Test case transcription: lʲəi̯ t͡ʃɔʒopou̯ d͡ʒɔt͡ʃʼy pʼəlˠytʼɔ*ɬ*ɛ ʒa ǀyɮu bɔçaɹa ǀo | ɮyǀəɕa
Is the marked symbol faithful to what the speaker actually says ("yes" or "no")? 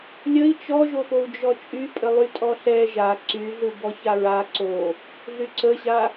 yes